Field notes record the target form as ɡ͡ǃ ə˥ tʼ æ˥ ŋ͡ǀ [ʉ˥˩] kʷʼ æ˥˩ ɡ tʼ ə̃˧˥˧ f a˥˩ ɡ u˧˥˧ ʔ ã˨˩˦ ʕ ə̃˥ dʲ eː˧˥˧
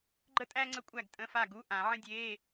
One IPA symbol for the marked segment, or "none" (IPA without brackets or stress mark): ə˥˩